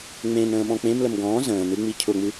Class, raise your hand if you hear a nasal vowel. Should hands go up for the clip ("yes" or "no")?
yes